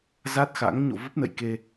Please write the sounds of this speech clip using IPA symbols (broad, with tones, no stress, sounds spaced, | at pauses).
z a˦˥ t̚ x a̰˧˥ ŋ ɲ o̰˧˨ v ə˦˥ p̚ n ə̰˧˨ j k e˧